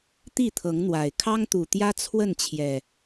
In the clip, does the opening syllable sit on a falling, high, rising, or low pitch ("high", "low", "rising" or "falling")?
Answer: falling